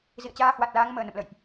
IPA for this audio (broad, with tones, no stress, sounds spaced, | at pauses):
z ḭ˧˨ ə̯ t͡ɕ aː˧ h w a˨˩ t̚ l aː˨˦ ŋ m əː˨˩ n ə̰˧˨ m l ə̰˧˨ j ʔ